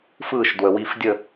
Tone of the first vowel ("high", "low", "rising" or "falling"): falling